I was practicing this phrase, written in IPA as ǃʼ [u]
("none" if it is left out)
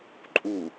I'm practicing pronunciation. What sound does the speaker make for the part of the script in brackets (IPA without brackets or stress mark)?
u